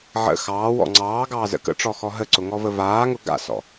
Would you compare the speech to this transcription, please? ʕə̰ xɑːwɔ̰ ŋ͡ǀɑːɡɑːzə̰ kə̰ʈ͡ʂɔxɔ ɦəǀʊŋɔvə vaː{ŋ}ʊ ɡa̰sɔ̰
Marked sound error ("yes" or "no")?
no